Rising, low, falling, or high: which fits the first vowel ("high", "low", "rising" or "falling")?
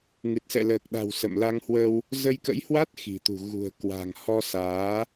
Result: low